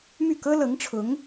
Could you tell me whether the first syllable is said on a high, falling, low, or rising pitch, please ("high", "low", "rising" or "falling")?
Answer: falling